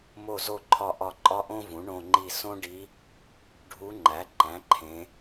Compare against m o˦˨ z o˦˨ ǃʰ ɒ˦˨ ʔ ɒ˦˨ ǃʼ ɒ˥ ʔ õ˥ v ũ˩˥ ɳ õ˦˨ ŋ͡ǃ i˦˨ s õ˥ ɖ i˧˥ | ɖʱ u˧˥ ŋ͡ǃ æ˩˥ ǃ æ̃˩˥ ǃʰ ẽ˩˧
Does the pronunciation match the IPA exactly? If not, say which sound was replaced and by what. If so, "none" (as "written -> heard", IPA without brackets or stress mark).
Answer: none